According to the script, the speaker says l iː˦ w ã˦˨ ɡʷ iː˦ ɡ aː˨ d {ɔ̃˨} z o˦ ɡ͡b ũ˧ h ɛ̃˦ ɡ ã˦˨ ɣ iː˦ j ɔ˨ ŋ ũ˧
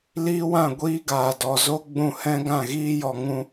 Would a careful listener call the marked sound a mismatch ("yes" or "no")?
yes